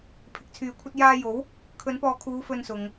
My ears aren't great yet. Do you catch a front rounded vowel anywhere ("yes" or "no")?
yes